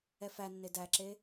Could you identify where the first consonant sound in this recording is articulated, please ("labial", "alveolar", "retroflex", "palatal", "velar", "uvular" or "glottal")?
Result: labial